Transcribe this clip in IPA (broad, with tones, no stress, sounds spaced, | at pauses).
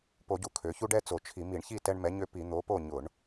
p o˧˩˧ ɟ u˨˩ kʰ ø˩˧ ç u˦ ɖ ɛ˦ t͡s o˨˩ t͡ʃʰ i˧˩˧ m i˧˩˧ ɳ ç i˥˨ t ɛ˦ ɳ m ɛ˨˥ ɲ ø˦ p i˧˩˧ n̪ o˨˥ p o˥˨ ɲ ʊ˧˩˧ ɳ